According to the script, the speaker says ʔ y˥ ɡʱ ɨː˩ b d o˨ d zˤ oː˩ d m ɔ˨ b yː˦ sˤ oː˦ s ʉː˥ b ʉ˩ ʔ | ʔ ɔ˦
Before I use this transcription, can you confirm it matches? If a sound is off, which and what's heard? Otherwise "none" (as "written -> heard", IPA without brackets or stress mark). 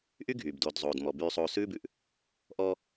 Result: ɨː˩ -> yː˩